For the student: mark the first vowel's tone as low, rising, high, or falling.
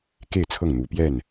falling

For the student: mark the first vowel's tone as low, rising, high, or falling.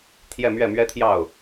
falling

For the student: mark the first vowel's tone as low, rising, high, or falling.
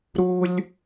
high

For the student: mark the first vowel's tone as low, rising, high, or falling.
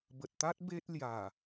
low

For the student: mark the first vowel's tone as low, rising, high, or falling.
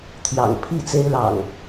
low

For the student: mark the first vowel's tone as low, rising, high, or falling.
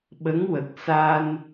rising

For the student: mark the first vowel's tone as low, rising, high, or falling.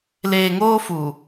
low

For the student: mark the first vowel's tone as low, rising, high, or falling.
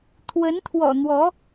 rising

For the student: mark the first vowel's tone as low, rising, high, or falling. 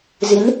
rising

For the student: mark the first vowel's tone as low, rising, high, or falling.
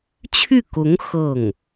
falling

